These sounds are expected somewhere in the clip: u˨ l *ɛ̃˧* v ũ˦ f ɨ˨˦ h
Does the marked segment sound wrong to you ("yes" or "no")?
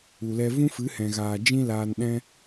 yes